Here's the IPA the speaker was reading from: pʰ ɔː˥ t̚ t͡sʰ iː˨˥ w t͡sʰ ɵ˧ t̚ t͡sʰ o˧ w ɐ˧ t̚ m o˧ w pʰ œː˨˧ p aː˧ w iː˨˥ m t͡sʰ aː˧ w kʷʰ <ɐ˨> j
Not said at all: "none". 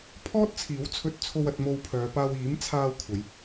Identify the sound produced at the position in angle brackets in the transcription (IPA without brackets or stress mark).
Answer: ɐ˨˧